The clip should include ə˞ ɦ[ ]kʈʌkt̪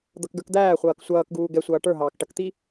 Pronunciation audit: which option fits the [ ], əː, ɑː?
ɑː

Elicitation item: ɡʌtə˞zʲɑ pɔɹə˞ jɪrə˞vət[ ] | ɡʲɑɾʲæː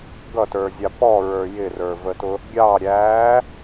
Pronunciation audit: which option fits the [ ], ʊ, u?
ʊ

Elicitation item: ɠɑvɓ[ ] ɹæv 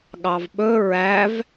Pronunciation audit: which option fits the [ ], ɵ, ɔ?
ɵ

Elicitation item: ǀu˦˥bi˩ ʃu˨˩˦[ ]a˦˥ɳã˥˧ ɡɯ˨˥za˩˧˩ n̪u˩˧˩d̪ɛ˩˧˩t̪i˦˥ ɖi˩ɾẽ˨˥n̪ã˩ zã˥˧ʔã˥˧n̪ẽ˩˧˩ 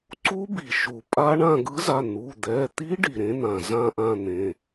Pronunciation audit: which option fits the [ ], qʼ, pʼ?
pʼ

